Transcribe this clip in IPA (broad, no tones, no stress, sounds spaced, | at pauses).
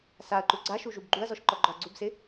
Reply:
s a ɐ̯ ǃ u ɡ͡ǀ a ʃ u ʒ u b ɡ͡ǃ u ɐ̯ z ɔ ʃ ǃ ɔ ɡ͡ǃ ɔ ɐ̯ ɡ͡ǀ u b s ɪ